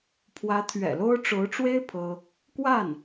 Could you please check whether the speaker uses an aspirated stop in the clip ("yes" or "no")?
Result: yes